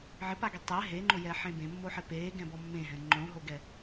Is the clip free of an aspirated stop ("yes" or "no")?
yes